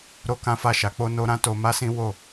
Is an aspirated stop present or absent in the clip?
absent